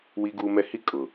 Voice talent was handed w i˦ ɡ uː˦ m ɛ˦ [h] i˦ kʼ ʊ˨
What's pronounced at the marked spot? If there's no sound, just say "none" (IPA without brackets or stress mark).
h